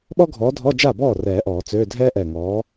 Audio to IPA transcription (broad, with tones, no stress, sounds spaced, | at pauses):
ɓ ɔ˥ ɡʱ ɔː˨˥ dʱ ɔ˧˥˧ d͡ʒ a˥˩ b ɔː˥˩ r ɛː˨˩˦ ʔ ɔː˨˩˦ t͡s øː˧˥˧ dʱ ɛː˥ ʔ ɛː˧˩ ŋ ɔː˨˥